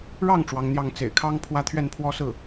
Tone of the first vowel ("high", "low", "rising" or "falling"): falling